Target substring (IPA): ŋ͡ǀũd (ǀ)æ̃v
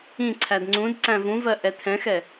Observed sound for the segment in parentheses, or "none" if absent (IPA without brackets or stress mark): ǀ